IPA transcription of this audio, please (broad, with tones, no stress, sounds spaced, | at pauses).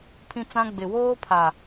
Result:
pʰ ĩ˦ t͡s ã˦ ɡ͡b ɪ˨ w oː˦ pʰ a˨